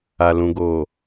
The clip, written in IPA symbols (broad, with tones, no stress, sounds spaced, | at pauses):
a˨ l ũ˨ ɡ oː˨